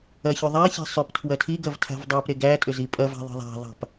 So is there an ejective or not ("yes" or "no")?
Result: yes